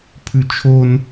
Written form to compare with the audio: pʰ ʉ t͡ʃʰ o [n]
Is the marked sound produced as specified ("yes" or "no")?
yes